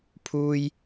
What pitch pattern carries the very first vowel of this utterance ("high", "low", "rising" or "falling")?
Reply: high